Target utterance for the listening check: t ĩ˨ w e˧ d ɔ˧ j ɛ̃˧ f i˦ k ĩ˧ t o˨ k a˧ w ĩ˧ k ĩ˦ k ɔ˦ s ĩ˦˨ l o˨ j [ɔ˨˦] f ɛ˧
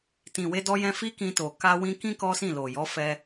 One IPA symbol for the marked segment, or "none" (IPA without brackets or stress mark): ɔ˨˦